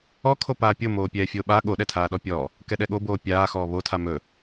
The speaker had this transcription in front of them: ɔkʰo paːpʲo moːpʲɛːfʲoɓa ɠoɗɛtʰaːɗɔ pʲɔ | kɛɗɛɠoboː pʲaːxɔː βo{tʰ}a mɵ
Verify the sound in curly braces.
correct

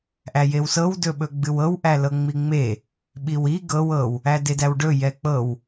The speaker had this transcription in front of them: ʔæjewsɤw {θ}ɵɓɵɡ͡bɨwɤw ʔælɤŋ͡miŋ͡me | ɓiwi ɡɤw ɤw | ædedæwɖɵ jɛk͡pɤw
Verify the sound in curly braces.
incorrect: d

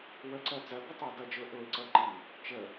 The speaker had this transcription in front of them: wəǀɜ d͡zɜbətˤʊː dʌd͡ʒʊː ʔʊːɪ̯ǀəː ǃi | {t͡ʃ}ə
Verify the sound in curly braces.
correct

